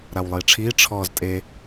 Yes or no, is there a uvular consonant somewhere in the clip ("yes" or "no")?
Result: no